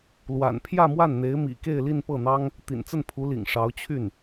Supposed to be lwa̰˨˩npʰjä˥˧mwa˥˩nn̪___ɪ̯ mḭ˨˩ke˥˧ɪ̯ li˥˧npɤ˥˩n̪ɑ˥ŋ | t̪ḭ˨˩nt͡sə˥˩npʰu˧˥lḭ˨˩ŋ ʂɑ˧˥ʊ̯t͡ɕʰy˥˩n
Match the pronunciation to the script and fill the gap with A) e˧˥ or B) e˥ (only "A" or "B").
A